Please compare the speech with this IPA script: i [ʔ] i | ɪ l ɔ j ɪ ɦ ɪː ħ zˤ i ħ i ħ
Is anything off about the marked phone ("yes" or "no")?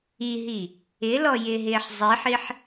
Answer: yes